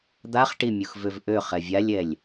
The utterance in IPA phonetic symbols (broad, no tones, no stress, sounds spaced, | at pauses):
d̪ a χ ʈ i mʲ u x v ø v ʔ ø χ ɛ vʲ a lʲ ɛ lʲ